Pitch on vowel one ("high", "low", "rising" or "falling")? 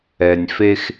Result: low